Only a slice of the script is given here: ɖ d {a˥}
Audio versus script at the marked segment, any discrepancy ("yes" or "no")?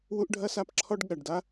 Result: no